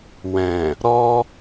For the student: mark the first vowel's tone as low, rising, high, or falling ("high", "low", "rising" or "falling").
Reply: low